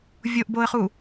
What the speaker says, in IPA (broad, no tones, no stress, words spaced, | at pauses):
vʲoʔboə̯χu